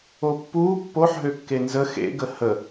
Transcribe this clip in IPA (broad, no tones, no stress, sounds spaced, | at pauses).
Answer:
o pː uː pː o ħ ɦ ø kː e n z ə x ḛ ɡ ə h ə